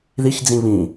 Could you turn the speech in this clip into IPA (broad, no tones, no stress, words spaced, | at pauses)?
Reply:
ðiçd͡zĩ βĩ